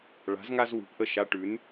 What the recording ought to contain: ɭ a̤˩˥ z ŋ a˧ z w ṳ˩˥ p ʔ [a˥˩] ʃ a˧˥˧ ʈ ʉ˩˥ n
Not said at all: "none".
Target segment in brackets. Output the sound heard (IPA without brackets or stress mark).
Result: ə˥˩